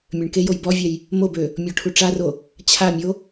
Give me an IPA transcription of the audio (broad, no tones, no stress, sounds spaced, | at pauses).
mʲ ø ɳ k e j o j b ɔ vʲ ɛ j | m o b ø | mʲ ɔ ʈʰ u ʈ͡ʂ a r o | t͡ɕʰ a mʲ o